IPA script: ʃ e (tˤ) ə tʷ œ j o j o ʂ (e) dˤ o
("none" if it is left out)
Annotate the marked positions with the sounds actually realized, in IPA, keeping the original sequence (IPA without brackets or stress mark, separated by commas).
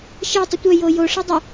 tˤ, ɛ